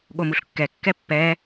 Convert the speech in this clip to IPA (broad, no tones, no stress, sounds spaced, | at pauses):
ɠ o m u ɬ kː ɛ kː ɛ pː ɛ